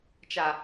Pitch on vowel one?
low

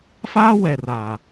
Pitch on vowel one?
high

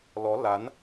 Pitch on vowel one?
rising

